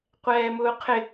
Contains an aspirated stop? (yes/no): yes